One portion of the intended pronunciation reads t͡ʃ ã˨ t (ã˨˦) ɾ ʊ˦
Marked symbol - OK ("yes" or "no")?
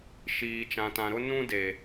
no